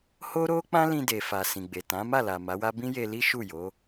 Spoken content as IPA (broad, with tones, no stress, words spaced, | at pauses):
ho˦ ɾo˦k͡pã˦ lĩ˧de˨fa˨ sĩ˨ɡ͡be˨tã˨˦ ma˦˨la˨ ma˨˦wa˦ bĩ˦je˧li˦ʃu˦˨ jo˨˦